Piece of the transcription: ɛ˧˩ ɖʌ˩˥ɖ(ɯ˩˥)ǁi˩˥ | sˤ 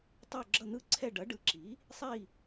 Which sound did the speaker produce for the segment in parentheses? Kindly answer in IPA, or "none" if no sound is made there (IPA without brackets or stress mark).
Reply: ɯ˩˥